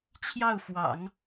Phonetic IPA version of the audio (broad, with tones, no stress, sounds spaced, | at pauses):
t͡ɕʰ j ɑ˥˩ ʊ̯ f w ɑ̰˨˩˦ ŋ